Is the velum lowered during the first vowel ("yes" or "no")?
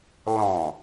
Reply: yes